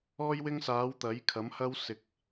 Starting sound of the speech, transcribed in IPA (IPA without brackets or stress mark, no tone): ɔː